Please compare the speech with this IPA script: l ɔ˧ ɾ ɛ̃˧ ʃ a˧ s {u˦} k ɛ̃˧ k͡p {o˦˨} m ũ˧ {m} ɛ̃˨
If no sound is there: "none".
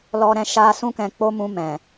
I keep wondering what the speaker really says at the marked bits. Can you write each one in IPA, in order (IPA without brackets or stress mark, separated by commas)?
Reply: ũ˦, o˦, m